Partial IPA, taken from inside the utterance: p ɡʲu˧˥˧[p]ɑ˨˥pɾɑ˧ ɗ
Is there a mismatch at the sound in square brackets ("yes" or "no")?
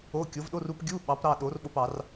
yes